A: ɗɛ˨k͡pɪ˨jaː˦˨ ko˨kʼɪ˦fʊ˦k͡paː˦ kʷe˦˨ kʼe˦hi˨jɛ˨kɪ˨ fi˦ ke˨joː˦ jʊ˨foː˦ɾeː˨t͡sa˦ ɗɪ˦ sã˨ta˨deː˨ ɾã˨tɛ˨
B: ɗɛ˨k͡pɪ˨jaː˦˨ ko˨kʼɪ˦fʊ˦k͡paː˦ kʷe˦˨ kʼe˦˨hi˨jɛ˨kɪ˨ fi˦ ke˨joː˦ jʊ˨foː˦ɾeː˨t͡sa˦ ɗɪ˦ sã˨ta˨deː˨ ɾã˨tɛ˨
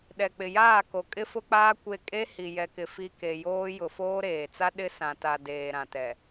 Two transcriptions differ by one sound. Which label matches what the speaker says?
A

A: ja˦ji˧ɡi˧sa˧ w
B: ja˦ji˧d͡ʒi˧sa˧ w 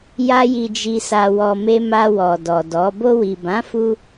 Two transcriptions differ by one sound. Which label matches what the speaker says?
B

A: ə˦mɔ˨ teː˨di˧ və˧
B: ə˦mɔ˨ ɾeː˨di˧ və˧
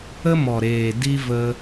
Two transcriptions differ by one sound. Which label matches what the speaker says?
B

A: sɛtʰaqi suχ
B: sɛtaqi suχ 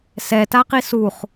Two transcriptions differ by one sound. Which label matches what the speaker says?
B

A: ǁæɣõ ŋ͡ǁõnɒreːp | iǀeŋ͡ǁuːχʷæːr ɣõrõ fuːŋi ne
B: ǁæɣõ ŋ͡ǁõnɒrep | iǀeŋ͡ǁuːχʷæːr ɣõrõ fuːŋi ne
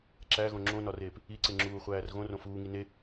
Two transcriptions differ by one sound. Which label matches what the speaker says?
A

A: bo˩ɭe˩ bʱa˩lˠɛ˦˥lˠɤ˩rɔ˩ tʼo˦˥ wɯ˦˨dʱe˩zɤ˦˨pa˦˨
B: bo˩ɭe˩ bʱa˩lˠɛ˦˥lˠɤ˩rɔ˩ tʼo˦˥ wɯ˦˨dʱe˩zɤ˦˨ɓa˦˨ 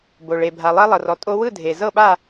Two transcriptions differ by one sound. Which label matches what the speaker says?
B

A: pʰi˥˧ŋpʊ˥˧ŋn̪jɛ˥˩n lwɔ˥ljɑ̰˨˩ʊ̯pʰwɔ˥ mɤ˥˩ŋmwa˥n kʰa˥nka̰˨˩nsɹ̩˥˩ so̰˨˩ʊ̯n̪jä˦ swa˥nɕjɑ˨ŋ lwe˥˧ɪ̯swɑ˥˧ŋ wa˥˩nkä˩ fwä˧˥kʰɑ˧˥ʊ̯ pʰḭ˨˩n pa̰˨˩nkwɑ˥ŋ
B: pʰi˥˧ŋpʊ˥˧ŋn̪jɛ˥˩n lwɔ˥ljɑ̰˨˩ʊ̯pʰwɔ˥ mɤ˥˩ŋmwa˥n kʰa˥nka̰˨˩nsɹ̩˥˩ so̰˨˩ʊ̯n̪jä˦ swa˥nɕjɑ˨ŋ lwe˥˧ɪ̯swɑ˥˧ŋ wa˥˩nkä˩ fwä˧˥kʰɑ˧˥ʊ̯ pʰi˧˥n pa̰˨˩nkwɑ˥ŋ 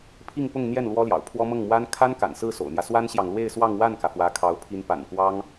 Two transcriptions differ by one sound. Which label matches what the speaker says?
B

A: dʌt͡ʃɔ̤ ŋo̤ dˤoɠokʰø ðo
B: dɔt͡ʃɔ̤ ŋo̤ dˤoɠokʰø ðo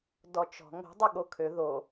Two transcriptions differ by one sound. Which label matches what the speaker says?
B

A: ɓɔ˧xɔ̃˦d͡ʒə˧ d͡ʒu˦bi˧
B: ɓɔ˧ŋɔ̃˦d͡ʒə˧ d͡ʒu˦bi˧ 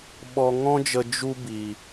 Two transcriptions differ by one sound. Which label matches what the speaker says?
B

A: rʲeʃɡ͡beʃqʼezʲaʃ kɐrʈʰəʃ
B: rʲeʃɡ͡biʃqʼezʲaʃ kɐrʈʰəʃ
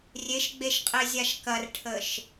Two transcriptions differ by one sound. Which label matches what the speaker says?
A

